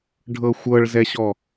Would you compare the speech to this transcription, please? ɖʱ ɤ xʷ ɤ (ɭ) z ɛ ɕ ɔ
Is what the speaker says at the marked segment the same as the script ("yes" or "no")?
yes